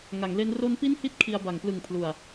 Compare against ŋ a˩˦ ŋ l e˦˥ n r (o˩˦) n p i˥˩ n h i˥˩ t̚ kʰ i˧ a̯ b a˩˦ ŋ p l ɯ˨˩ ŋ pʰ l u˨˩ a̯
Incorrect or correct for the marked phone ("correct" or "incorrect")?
incorrect